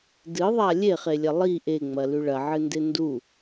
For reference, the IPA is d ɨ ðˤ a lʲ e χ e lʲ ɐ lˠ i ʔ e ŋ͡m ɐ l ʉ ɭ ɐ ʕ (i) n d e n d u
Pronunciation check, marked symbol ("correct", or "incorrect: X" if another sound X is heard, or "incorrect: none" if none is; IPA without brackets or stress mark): incorrect: ɨ